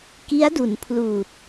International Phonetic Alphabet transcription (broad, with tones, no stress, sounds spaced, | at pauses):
k i˦˥ a̯ d u˩˦ n pʰ l uː˨˩ t̚